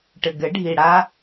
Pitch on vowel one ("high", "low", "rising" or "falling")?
low